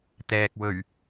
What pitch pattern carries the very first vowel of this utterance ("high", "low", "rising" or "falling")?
low